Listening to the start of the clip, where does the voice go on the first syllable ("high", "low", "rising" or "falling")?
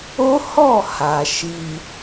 high